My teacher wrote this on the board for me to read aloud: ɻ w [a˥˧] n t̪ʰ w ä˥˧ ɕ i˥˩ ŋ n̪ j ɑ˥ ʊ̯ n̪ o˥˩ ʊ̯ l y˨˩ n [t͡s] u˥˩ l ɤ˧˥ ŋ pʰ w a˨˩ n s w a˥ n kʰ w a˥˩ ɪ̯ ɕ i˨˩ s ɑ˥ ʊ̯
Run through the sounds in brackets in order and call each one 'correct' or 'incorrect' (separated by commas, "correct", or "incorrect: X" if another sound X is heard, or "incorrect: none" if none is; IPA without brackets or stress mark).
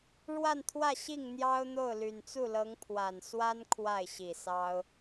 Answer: correct, correct